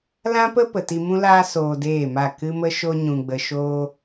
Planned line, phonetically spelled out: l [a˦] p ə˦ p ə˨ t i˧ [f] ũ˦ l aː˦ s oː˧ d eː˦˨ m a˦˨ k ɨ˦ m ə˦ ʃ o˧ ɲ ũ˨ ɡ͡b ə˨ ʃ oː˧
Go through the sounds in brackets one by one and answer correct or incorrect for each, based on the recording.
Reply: incorrect, incorrect

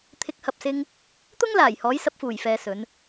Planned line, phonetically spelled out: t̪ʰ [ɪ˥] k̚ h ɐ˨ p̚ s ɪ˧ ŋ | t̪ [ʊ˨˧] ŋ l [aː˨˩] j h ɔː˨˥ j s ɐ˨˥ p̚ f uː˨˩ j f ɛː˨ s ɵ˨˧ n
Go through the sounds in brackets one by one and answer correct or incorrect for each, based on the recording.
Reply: incorrect, incorrect, correct

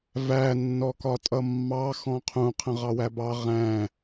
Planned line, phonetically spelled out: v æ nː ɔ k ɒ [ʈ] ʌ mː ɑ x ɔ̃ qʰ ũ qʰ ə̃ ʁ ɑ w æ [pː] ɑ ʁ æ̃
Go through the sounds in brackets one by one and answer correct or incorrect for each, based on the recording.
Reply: incorrect, incorrect

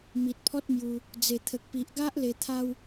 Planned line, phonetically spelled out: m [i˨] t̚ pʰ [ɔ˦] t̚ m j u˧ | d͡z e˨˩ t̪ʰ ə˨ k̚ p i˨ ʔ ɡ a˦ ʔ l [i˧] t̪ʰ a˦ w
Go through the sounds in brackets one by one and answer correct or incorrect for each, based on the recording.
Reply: correct, correct, incorrect

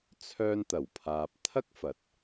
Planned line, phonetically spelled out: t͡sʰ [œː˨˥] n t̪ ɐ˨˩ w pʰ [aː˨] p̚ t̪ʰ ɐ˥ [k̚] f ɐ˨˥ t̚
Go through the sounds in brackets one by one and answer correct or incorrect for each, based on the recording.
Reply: incorrect, correct, correct

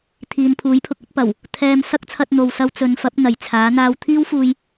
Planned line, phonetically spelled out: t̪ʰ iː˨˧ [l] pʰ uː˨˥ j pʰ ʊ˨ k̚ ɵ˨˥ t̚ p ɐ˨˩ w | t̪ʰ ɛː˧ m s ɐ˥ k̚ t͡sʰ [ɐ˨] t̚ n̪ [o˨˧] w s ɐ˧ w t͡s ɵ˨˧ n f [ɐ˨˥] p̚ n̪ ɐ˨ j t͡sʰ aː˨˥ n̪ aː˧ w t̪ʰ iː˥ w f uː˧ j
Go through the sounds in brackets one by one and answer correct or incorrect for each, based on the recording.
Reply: incorrect, incorrect, incorrect, correct

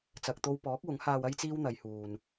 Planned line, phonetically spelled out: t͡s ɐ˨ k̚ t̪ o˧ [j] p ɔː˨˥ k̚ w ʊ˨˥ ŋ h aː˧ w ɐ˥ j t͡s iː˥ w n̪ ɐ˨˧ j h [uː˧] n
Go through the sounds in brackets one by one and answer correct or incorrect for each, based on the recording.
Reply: incorrect, incorrect

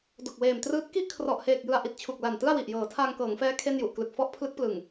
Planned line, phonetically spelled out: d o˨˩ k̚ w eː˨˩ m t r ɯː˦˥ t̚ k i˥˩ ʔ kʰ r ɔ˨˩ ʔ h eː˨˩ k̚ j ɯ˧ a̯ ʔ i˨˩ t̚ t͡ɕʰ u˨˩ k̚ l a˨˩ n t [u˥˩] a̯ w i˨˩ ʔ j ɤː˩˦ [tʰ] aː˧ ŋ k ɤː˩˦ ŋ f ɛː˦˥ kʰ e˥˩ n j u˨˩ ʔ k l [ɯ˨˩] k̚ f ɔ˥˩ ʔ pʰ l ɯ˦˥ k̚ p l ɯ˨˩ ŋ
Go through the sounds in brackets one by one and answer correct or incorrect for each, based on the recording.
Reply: incorrect, correct, correct

